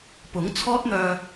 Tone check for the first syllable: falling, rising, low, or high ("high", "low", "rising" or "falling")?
rising